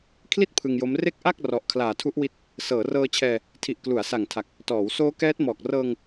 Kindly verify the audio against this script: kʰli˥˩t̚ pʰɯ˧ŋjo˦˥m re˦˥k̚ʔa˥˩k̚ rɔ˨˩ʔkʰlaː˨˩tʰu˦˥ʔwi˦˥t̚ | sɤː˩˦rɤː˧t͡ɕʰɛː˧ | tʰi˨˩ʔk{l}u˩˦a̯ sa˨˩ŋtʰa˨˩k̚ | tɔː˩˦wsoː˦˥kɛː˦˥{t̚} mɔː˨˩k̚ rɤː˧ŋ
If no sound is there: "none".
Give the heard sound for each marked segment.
l, t̚

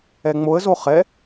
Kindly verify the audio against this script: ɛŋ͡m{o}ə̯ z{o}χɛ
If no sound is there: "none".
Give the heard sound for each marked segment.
o, o

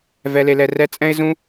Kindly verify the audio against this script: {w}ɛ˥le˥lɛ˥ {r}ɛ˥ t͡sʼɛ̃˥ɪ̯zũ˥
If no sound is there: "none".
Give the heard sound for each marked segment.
v, r

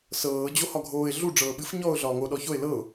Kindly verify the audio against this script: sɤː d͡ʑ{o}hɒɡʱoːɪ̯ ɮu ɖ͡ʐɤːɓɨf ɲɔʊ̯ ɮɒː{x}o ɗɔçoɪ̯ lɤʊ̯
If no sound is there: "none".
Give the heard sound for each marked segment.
o, ŋ

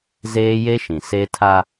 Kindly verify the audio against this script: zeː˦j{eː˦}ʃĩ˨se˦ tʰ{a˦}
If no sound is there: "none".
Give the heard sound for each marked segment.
e˦, a˦

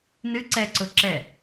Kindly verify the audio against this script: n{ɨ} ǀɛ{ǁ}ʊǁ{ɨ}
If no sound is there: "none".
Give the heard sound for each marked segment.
ɨ, ǀ, ɛ

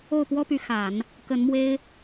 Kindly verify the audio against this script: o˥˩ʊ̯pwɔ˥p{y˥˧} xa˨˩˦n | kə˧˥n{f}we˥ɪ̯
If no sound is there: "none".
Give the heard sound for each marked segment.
y˧˥, m

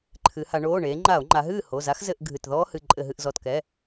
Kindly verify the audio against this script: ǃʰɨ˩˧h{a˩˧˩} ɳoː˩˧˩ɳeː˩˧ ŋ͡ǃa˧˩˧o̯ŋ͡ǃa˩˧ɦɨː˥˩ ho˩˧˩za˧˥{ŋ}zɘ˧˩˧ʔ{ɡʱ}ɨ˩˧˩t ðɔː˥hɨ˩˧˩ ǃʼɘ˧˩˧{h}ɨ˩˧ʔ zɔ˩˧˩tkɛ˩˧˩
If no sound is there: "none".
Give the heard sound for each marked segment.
a˩˧, x, ɡʱ, ɦ

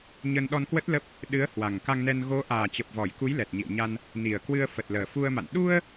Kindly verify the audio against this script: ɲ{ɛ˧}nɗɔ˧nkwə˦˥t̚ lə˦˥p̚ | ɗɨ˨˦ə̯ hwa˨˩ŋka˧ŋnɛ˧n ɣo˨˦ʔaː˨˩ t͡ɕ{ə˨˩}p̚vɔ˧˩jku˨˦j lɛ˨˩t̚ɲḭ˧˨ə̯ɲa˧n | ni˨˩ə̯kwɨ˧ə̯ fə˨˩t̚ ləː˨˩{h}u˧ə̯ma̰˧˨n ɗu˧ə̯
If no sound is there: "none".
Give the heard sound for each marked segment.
ə˧, ə˨˩, f

